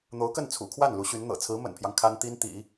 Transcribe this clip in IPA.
n̪ o˧˥ ʊ̯ k ə˥˩ n t͡sʰ ṵ˨˩ kʰ w a˥˩ n l u˧˥ ɕ y˧˥ n n̪ ɤ̰˨˩ t͡sʰ ɹ̩˧˥ m ə̰˨˩ n pʰ j ɑ˦ ŋ kʰ a˥ n t̪ i˥ n t̪ ḭ˨˩˦

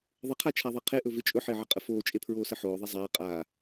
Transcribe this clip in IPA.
ðˤ ə qʰ a t͡ʃʰ a ðˤ e qʰ e ʔ ɵ v ɪ t͡ʃʼ ɵ ħ ɪː ʕ ɪ qʼ ə f oː t͡ʃʼ e pʰ ɹ oː s ə ħ oː ðˤ e zˤ aː qʼ aː

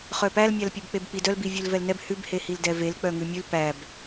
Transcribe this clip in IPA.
χ œ p æ l mʲ æ l pʲ ʉ b k͡p e b k͡p i d œ l b i vʲ ʉ l v ɛ l n ɛ b h ʉ b h e h i l d ɛ v e l k͡p œ ŋ ʉ mʲ ʉ l p æ b

